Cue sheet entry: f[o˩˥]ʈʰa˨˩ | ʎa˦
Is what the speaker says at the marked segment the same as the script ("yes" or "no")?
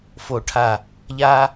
no